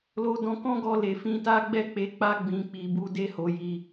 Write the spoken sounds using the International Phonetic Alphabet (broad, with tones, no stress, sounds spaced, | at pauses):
l o˧ d ɔ̃˧ k ɔ̃˦ ɡ ɔ˧ l e˨ f ĩ˧ t a˦ ɡ͡b ɛ˦˨ k͡p e˧ k͡p a˦ ɡ͡b ĩ˧ k͡p i˧ b u˦ d e˦ h o˧ j i˧